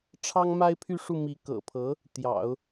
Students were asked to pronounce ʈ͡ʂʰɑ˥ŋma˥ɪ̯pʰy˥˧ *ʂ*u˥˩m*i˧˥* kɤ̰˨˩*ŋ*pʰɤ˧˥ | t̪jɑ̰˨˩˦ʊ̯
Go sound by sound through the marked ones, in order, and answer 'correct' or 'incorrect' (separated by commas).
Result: correct, correct, incorrect